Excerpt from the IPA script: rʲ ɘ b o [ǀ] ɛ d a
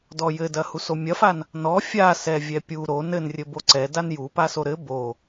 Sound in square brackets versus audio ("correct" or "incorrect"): correct